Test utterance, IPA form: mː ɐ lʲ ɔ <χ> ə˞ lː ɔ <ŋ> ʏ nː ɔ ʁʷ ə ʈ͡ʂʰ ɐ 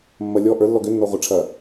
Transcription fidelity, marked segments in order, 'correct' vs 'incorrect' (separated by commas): incorrect, incorrect